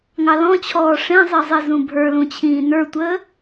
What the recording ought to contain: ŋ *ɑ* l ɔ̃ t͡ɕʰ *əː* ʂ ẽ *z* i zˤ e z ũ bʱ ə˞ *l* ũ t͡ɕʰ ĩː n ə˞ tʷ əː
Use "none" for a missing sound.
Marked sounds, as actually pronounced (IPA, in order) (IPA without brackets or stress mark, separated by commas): ɑ, ɔː, zˤ, l